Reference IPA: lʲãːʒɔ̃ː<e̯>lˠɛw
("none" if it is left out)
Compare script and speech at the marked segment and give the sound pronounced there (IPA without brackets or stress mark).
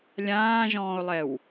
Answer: o̯